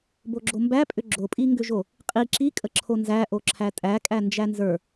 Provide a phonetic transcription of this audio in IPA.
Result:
b o ɡ͡ǁ o m b æ pʼ ʏ ɡ͡ǁ o pʼ i ŋ ɡ ʏ ʒ o | qʼ i ǁ i kʼ ə ǁʰ o n z æ ʔ o ǁʰ æ tʼ æ kʼ æ n d͡ʒ æ n z ə˞

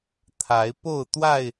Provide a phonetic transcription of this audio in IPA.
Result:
t̪ʰ a˨˦ ɪ̯ p o˥˨ ʊ̯ t̪ w a˥˨ ɪ̯

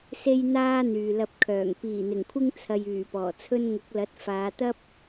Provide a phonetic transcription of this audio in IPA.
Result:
s e˥ j n̪ aː˥ n̪ yː˨ l ɐ˧ p̚ kʰ œː˨˩ ŋ p iː˨˩ n̪ ɪ˨˩ ŋ kʷʰ ɪ˥ ŋ t͡sʰ ɐ˧ j yː˨˩ p ɔː˨˩ t͡sʰ ɵ˥ n ŋ ʊ˨˥ k̚ l ɐ˨˥ t̚ f aː˨˧ t̪ ɐ˥ p̚

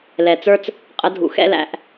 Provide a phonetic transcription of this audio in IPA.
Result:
l ɛ˨˩ t͡s ə˞˥ t͡s | qʼ ə˧˥ dʱ ṵ˨˩ x ɛ̰˥ l æ̰˩˥ ʔ

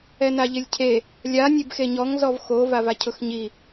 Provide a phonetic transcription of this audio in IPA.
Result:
ɛ n a ʎ ɪ lʲ cʰ e | lʲ a nʲ e b x e ɲ ɔ ŋ z ɔ v x o v a v a cʰ ʊ x ɲ i

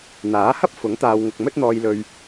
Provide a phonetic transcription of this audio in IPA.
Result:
n̪ aː˨˥ h ɐ˥ p̚ f ʊ˨˥ ŋ t̪ aː˨ w ŋ ʊ˨ k̚ m ɵ˥ t̚ n̪ ɔː˧ j l ɵ˧ ɥ

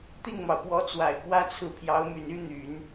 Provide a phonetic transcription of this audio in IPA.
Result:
t̪ i˥˩ ŋ m ɑ˩ ʊ̯ p w ɔ˧˥ t͡s w a˨˩ ɪ̯ k w ä˥ t͡sʰ ɹ̩˥˩ pʰ j ɑ˧˥ ʊ̯ m y˨˩ n y˥ n̪ y˨˩˦ n

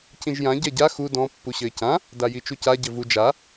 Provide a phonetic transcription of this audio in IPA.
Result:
c ĩ ʒ j ã ɟ ɛ ɟ a x u d ɔ̃ pː u ɕ ɘ ɪ̯ c ã | d a j i t͡ʃ u c a ɟ ɘ v u d͡ʒ a

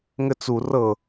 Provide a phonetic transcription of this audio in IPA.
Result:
ŋ ɘ t͡s u r ɤ

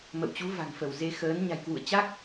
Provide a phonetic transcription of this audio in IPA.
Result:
m ə̰˧˨ w t͡ɕ u˨˦ v a̤˨˩ ŋ f ə˧˩ w z e˧ x əː˨˦ n ɲ a̤˨˩ j k w ṵ˧˨ ə̯ t͡ɕ a˦˥ k̚

